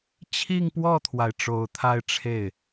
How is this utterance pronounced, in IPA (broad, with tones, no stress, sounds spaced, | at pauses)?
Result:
t͡ɕʰ i˥˧ ŋ p w ɔ˥˩ t̪ʰ w a˩ ɪ̯ ʈ͡ʂ o˨˩ ʊ̯ t̪ʰ a˥˧ ɪ̯ ʈ͡ʂʰ e˥˩ ɪ̯